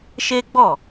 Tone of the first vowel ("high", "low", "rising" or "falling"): high